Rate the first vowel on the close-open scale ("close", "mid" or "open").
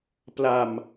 open